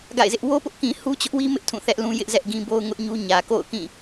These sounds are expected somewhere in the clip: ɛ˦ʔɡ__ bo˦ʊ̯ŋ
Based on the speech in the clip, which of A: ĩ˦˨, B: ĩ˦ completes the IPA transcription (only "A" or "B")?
B